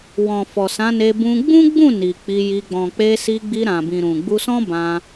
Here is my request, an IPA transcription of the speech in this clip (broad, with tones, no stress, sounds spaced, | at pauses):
w ɔ̃˨ f ɔ˨ s ã˨˦ n e˧ b ũ˧ ɡ͡b ũ˦ ɡ͡b ũ˦˨ n i˨ k͡p i˧ j i˧ ɡ͡b ɔ̃˨ k͡p e˧ s i˧ ɡ͡b i˧ ɾ ã˨ b ĩ˨ ɾ ũ˨ ɡ͡b u˧ s ɔ̃˦ b ã˧